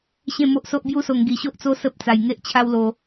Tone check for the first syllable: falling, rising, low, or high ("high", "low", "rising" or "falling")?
falling